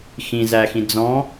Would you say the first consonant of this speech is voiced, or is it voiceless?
voiceless